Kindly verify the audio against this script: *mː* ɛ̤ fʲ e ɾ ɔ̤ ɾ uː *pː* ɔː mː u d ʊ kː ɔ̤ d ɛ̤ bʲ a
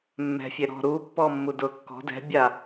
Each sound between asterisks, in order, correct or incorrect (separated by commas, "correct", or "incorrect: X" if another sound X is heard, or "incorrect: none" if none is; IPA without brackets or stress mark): correct, correct